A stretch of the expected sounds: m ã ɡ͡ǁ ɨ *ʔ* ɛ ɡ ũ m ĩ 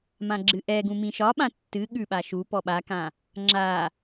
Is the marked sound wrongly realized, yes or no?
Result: no